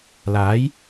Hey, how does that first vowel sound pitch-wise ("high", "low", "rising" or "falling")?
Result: rising